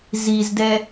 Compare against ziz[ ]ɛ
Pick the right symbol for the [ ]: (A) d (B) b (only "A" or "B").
A